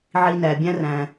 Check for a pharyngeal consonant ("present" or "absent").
present